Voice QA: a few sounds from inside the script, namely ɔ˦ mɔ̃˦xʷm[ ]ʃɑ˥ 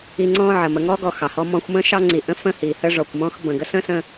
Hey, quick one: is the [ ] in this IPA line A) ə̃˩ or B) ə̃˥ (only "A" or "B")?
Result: B